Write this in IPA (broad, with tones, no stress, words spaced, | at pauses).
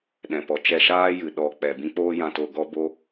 ɗɛ̃˨pɔ˨ t͡ʃɛ˧ʃaː˦jɨ˨ ɗɔ˦k͡pɛ˧ bĩ˦k͡poː˦jã˧to˧ ɡɔ˦bo˦